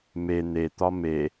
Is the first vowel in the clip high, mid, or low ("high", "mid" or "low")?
mid